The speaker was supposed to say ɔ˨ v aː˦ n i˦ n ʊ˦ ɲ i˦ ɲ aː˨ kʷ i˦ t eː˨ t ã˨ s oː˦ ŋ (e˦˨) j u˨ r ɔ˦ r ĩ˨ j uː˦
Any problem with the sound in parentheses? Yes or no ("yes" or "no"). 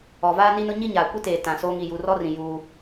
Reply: yes